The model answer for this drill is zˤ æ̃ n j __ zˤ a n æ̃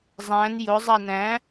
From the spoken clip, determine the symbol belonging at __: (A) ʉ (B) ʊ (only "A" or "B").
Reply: B